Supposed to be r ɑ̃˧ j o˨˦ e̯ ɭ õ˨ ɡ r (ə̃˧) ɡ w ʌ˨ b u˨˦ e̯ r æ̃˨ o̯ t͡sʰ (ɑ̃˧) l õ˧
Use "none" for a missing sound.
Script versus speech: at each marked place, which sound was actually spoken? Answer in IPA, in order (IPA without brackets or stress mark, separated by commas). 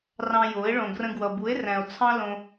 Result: ə̃˧, ɑ̃˦